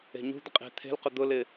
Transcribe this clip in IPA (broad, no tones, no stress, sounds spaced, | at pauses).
e̤ ɲ ṳ d̪ ɪ qʼ e̤ t̪ʰ e̤ l q ʊ d̪ ʊ l ɪ